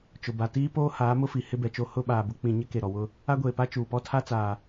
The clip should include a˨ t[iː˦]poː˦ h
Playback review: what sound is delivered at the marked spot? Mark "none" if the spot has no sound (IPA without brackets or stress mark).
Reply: iː˦